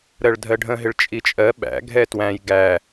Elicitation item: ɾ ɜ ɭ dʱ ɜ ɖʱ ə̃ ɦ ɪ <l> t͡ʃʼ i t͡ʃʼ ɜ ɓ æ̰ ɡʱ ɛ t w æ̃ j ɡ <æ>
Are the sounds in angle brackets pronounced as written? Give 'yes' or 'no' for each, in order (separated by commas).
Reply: no, yes